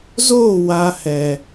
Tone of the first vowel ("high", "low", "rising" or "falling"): falling